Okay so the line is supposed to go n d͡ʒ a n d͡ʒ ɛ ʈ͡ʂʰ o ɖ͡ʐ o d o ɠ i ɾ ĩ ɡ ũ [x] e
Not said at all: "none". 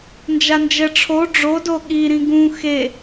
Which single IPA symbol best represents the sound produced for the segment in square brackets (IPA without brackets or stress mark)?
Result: x